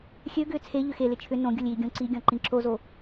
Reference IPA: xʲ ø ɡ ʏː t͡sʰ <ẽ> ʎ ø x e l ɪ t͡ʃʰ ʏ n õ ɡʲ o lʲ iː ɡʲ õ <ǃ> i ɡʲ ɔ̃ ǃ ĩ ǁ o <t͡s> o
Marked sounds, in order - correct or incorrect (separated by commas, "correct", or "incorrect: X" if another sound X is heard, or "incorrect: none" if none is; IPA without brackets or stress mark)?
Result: incorrect: e, incorrect: ǀ, incorrect: z